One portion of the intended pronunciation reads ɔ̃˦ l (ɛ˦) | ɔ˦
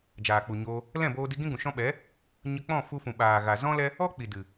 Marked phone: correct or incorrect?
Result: correct